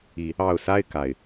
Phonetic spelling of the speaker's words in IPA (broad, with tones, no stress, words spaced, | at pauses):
i˨˦ | ɑ˨˩ʊ̯sa˥˨ɪ̯ ka˨˩ɪ̯